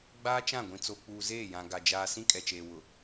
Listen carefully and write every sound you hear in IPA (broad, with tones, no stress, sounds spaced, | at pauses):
ɡ͡b aː˦ t͡ʃ ã˦˨ ɡʷ ĩ˨ t͡s o˨ k͡p uː˨ z eː˦˨ j ã˨ ɡ a˨ d͡ʒ aː˨ s ĩ˦ kʼ ɛ˨ t͡ʃ eː˨ w ʊ˨